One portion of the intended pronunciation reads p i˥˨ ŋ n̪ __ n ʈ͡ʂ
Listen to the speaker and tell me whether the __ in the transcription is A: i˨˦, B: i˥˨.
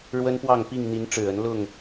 A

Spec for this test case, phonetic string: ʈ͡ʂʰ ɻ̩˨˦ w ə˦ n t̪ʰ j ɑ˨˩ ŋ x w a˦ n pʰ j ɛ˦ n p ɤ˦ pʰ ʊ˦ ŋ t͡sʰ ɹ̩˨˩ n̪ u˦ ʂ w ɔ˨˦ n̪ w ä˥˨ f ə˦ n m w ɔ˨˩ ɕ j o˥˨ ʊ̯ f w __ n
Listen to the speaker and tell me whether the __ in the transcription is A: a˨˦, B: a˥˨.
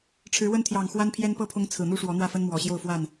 B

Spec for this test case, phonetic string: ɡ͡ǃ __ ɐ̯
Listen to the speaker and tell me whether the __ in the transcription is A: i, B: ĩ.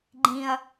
B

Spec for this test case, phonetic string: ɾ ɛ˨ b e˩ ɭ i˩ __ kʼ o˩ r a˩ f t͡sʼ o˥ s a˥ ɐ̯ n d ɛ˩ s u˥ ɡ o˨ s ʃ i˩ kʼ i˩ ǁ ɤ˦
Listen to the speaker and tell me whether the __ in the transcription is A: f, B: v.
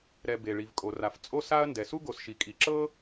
B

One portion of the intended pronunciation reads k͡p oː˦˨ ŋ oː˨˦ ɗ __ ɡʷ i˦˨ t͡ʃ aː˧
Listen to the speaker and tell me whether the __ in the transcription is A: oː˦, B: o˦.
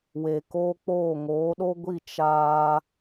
B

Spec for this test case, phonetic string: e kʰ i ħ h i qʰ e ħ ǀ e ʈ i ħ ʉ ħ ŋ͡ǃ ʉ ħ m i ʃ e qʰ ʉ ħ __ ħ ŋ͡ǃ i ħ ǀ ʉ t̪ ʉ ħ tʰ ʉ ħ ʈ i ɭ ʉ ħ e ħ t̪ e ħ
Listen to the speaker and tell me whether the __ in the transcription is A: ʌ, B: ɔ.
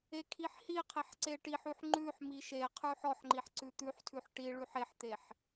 B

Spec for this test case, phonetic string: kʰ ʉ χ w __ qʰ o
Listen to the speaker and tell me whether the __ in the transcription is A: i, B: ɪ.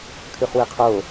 A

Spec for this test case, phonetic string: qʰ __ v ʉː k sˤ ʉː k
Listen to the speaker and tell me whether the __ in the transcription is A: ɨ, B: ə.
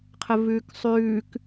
B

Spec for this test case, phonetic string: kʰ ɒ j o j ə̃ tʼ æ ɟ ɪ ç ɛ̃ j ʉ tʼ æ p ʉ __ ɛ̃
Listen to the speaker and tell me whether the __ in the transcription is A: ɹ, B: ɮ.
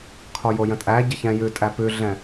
B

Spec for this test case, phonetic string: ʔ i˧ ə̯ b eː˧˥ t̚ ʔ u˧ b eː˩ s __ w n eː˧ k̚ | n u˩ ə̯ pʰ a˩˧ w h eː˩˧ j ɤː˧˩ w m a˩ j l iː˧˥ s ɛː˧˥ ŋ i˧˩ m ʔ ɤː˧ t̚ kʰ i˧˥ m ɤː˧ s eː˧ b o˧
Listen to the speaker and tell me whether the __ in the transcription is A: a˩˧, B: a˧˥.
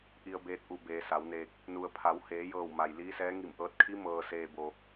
A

